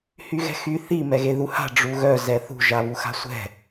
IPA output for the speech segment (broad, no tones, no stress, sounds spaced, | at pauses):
h y ɣ ɛ̤ x y θ i m ɛ ɣ e ð u h a̤ ɖ͡ʐ u ɣ œ z ɛ θ ṳ ʒ a β u x a̤ sʷ ɛ̤